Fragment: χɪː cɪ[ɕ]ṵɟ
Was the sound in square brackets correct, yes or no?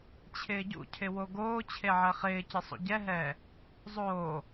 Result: no